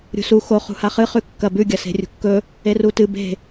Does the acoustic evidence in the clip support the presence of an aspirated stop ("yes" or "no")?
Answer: no